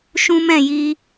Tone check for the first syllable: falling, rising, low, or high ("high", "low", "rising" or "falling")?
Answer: high